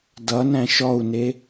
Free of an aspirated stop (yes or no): yes